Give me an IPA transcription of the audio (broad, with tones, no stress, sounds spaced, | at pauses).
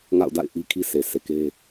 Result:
ŋ a̰˦˨ ʊ̯ d a̰˦˨ ɪ̯ ʔ i˦ kʰ i˦ sʰ e˨ sʰ e˨ k e˦